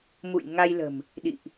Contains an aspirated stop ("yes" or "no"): no